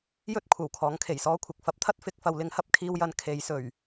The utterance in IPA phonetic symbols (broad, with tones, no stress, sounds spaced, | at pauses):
j ɵ˥ t̚ kʷʰ ɐ˨˩ w kʰ ɔː˨˥ ŋ kʰ e˨˩ j s ɔː˥ kʷʰ ɪ˨ k̚ f ɐ˨˥ p̚ t̪ʰ ɐ˥ t̚ f ɪ˧ k̚ f ɐ˨ w l ɪ˨˥ ŋ h ɐ˧ p̚ kʰ iː˧ w j ɐ˨˧ n kʰ e˨˧ j s ɵ˨˩ ɥ